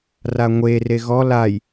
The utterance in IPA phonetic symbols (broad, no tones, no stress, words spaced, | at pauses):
raŋʷere ɣɔ laj